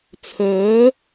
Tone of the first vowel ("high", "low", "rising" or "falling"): rising